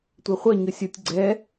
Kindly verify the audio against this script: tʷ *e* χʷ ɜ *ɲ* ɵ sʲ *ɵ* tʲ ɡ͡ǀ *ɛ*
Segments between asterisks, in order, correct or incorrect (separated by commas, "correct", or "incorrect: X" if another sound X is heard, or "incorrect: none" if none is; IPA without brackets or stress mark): correct, correct, incorrect: o, correct